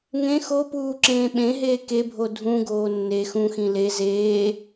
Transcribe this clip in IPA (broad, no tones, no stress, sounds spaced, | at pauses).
ŋ ẽ x o p uː ǁ ẽː ɓ ẽ ɦ eː k e bʱ o dʱ ũ ɡ oː nː e x ũ x ĩ l e z eː